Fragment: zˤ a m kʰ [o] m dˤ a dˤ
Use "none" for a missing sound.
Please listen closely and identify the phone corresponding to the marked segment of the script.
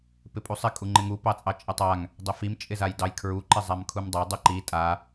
u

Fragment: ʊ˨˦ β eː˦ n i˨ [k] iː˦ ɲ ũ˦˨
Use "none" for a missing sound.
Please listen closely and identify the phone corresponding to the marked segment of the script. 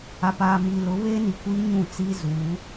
kʷ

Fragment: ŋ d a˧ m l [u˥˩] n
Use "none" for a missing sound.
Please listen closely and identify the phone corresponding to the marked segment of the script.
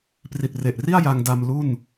u˥˩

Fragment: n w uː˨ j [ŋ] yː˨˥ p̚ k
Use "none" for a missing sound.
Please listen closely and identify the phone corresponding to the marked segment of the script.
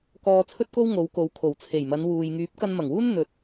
ŋ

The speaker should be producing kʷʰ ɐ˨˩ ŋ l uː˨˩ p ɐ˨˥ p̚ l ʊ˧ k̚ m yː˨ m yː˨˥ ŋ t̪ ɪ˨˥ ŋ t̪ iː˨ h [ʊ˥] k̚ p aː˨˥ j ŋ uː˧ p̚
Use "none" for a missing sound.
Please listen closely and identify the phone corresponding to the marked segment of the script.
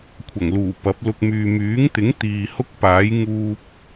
ʊ˥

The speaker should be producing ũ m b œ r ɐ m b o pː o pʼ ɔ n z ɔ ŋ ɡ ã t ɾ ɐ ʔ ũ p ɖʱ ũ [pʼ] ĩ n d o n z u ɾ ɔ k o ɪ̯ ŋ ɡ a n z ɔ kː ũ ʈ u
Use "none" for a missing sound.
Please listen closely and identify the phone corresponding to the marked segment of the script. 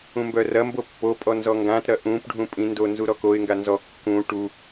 pʼ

